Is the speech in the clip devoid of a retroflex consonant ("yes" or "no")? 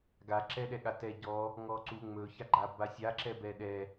yes